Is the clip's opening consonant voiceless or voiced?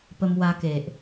voiceless